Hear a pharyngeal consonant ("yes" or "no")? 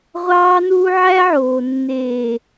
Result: yes